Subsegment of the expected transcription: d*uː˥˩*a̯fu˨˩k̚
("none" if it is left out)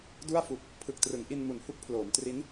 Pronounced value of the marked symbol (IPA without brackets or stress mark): u˥˩